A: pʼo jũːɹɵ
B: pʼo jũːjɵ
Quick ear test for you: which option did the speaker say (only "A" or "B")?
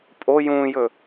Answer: B